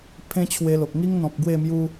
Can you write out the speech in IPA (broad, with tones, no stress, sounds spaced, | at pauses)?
pʰ ẽ˦ t͡ɕʰ w e˧ l o˨ k̚ ŋ i˦ ŋ n̪ ɔ̃˨ p̚ ɡ w e˥˧ m j u˦